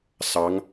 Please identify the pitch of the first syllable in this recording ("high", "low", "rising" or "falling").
rising